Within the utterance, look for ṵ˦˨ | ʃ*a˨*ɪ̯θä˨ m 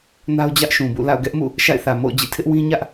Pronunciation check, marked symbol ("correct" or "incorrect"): incorrect